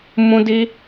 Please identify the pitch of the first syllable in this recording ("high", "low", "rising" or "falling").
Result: high